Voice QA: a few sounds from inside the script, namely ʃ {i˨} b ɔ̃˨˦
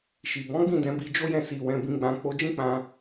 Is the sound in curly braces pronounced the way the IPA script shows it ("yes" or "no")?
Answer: yes